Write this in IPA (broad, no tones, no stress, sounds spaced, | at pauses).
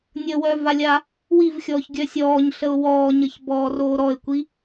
nʲ ə w œ v a lʲ a | w i v xʲ ɔː ç ɡʲ œ sʲ ɔː ɲ ɬ ə ʊ̯ w ɔː ɲ ə ç b ɔː r oː ɾ ɔ ɪ̯ kʷ i